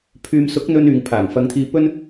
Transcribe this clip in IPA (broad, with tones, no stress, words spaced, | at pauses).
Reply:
pʰyː˧m sʊ˨˥k̚n̪ɵ˧n yː˨ŋpʰaː˨˩ŋ fɐ˨˧ŋt̪ʰiː˧ pɵ˥n